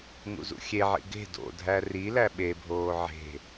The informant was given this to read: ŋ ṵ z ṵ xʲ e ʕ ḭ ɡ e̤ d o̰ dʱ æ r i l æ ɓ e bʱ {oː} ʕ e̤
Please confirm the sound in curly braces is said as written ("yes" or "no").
yes